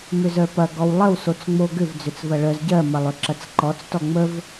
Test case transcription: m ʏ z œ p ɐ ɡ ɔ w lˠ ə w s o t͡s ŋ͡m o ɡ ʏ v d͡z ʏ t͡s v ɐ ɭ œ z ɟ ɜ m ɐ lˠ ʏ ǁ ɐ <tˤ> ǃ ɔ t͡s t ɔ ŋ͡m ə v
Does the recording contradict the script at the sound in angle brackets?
yes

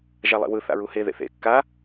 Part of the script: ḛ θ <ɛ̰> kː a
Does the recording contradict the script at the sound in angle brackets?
yes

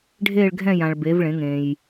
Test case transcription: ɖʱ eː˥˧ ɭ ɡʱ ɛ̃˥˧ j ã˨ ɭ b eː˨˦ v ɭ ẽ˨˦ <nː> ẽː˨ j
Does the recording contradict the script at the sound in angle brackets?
yes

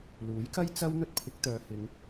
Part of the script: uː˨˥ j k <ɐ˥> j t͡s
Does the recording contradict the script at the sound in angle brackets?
no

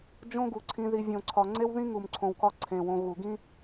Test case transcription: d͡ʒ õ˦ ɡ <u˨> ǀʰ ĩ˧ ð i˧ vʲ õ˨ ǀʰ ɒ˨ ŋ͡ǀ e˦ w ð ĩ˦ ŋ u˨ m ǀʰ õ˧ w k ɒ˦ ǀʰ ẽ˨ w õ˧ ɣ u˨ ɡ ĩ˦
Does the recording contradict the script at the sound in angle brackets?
no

